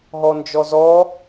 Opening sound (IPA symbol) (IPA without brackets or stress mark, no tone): ɦ